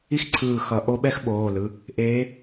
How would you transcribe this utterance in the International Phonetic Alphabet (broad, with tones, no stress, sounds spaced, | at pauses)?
i˥ x ǀʰ ɯː˧˩ x ʌ˨˩˦ ʔ o˧˥ ɓ ɛ˥ x ɓ oː˩˧˩ l ɯ˩˧˩ | ʔ eː˧˥